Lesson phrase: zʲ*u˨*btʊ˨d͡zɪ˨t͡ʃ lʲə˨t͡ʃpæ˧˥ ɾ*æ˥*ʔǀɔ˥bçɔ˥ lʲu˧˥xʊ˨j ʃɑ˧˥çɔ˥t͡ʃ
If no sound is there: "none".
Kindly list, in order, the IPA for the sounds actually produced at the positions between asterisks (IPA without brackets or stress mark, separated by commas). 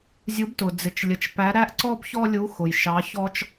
u˧˥, æ˥